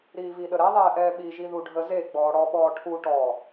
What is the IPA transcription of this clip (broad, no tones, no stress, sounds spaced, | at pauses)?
ɾ iː v i ɗ ə ɾ ɛ ðˤ ɛː ʔ ɛː ɓ i ʒ i ð u ɖʱ ə z e ɡ͡b ɔː ɽ ɔ ɓ ɔː ʈʰ u ʈ ɔ